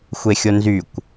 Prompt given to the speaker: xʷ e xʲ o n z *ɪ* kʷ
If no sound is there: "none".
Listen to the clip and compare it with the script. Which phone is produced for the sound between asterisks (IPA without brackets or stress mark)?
y